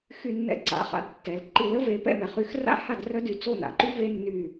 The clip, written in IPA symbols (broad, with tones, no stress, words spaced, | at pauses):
xy˧˩nːɛ̰˧ǀa̰˩˧˩χa̰˩˧˩d tːɛ˩lǃi˧˩lə˥ ve˩˧˩pɛ̰˥˩mɛ˩ χy˧x ra̰˥ha˥˩d rœ˥dy˧˩ t͡so˥˩na̰˩ǃy˥ ve˥ nːy˧˩